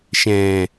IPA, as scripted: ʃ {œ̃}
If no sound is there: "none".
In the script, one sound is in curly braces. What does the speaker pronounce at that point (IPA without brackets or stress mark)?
ɛ̃